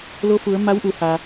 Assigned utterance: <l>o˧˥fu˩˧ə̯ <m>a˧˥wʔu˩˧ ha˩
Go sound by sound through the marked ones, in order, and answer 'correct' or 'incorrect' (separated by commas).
correct, correct